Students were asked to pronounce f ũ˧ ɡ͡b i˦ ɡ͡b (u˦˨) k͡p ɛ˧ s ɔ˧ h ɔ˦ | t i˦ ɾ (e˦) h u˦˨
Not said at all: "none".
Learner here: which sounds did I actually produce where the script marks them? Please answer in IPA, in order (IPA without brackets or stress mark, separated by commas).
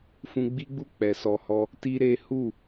u˦˨, e˦